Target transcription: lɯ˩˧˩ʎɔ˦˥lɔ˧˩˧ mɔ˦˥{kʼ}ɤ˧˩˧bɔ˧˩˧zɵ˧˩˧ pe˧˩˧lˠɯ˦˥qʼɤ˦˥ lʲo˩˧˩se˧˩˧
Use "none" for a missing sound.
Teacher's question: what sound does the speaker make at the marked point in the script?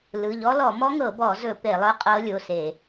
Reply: ŋ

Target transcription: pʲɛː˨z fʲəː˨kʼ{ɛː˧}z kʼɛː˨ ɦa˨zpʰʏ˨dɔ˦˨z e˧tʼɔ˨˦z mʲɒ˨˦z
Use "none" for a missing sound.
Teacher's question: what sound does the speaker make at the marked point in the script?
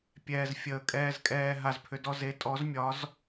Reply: ɛː˧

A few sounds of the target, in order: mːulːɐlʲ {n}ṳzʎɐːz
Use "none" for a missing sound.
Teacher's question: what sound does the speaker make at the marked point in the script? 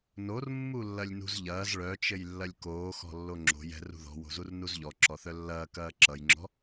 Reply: n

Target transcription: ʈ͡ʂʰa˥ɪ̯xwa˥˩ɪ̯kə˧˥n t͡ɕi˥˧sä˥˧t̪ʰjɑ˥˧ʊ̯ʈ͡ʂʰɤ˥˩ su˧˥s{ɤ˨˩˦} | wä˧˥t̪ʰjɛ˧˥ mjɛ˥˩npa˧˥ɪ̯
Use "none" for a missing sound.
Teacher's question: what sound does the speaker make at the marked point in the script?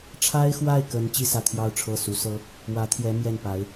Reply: ɤ˥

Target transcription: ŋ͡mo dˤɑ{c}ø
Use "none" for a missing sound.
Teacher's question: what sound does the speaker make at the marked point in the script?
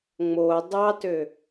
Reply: t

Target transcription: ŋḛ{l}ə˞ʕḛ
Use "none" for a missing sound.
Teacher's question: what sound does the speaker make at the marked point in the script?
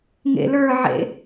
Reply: l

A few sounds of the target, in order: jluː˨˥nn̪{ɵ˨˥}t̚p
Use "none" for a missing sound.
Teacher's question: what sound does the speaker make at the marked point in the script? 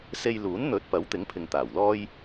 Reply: ɵ˨˥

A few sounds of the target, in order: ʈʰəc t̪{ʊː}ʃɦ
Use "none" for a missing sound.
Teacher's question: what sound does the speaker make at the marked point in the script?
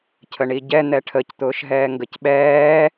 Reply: ʊː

